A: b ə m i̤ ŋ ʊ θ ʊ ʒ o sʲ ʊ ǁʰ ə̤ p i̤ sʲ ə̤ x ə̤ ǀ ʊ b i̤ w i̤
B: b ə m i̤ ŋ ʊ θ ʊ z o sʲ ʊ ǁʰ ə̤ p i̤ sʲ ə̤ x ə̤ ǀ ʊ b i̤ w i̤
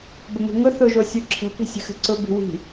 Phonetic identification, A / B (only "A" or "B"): A